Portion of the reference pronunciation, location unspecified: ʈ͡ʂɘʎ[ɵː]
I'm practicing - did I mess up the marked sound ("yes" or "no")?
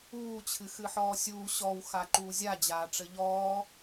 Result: yes